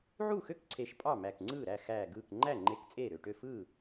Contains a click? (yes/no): yes